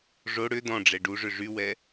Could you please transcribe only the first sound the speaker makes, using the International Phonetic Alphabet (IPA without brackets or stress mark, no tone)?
ʐ